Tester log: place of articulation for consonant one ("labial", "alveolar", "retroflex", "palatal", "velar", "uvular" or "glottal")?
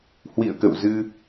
glottal